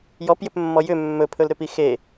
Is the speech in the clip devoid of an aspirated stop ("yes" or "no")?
no